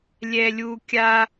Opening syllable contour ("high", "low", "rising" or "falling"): high